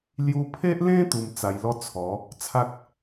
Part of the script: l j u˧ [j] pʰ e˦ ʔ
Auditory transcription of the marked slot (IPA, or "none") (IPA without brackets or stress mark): none